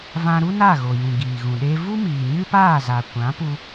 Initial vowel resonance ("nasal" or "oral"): nasal